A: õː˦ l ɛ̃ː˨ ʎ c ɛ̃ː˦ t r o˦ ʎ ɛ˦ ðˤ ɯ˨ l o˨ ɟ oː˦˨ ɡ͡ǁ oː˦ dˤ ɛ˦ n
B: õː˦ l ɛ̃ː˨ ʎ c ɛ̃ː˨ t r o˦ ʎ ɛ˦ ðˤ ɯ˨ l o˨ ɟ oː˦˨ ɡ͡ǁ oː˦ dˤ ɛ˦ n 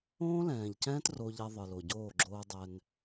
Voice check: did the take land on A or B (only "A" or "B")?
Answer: A